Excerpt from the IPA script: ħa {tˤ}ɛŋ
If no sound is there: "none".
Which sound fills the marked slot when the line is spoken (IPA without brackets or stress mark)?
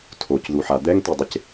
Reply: d̪